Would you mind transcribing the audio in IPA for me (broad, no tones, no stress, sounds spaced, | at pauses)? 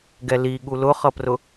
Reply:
ɡ ɛ l i ɠ u l ʊ χ ʌ p r ʊ